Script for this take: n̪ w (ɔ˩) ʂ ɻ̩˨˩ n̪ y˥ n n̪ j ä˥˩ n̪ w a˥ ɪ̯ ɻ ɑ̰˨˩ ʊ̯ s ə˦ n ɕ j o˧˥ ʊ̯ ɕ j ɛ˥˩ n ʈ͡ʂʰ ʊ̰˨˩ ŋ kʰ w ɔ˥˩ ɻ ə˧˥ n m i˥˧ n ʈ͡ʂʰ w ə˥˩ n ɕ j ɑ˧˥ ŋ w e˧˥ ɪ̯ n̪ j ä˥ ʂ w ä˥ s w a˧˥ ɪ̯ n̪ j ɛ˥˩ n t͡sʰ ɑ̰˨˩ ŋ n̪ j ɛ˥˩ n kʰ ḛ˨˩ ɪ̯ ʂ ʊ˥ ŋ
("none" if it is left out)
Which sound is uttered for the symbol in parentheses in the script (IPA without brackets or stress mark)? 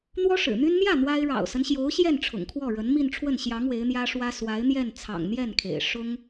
ɔ˥